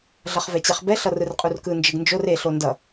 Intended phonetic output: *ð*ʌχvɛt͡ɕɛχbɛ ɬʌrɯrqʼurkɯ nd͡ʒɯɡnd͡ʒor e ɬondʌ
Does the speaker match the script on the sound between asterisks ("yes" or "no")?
no